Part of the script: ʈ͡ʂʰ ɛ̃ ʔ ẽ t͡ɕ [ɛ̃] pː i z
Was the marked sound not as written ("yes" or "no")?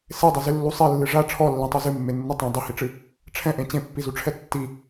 yes